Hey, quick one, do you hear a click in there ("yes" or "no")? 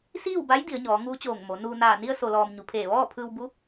no